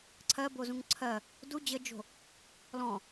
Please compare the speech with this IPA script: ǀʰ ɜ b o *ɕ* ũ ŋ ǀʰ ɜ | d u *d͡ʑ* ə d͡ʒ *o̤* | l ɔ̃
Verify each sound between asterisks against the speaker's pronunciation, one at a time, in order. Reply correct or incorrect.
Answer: incorrect: z, correct, correct

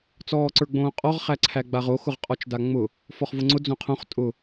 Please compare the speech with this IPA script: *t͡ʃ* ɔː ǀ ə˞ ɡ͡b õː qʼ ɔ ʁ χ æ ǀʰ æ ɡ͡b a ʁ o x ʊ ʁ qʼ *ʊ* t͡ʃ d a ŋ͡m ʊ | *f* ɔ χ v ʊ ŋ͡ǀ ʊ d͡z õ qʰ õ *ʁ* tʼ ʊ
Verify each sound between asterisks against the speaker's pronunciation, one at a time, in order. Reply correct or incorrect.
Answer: incorrect: t͡s, incorrect: ɔ, correct, incorrect: χ

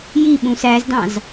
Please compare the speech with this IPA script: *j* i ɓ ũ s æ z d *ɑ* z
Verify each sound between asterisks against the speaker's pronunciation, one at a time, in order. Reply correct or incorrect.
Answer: correct, incorrect: ɑ̃

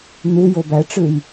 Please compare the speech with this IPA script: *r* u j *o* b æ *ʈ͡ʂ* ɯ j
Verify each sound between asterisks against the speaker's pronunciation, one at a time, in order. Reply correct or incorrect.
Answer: incorrect: n̪, correct, correct

